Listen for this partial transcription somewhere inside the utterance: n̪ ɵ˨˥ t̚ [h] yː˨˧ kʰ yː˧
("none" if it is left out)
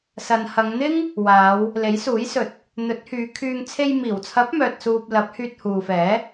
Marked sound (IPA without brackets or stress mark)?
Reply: h